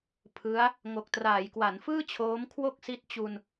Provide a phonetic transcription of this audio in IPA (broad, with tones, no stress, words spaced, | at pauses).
pʰɯ˦˥a̯ | ŋo˨˩k̚traː˩˦jkwa˩˦nfɯː˥˩ t͡ɕʰoː˦˥mkʰwo˥˩k̚si˦˥t̚ t͡ɕu˧n